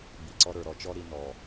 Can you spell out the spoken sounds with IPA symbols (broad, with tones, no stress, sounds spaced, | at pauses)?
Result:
b i˨ ǀ ɔ˦ ɾ ə˞˨ ɾ ɔ˦ t͡ʃ ɔ˦ ɾ i˦ n ɔ˨